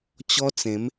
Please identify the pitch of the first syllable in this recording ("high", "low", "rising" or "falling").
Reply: high